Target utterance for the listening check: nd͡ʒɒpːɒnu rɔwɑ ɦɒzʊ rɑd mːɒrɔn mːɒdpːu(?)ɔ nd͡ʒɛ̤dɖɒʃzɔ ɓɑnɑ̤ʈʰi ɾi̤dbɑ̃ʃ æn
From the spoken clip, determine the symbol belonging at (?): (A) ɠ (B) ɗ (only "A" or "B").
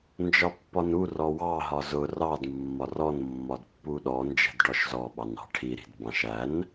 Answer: B